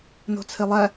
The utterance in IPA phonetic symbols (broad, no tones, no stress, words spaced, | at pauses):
no̤t͡sʰelˠæ